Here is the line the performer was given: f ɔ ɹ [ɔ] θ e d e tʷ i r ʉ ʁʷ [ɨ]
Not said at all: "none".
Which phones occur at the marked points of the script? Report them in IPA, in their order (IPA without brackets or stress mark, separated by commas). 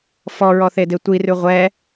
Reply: ɔ, ɛ